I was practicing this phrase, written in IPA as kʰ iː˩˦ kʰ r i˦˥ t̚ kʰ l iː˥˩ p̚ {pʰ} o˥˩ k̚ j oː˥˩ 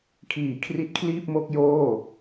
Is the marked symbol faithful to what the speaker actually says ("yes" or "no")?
no